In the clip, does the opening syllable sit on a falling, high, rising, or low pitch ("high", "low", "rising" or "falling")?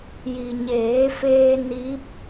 low